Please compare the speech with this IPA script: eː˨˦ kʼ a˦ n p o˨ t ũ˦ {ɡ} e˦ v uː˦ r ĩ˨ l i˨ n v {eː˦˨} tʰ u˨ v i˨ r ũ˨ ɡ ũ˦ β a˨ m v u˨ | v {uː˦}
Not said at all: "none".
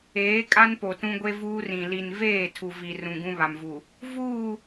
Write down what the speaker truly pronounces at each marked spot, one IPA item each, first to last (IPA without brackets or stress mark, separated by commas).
ɡʷ, eː˦˨, uː˦˨